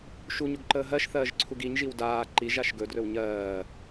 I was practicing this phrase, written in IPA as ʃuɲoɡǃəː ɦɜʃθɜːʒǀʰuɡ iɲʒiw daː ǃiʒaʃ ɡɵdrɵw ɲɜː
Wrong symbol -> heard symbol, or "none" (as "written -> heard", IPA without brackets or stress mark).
none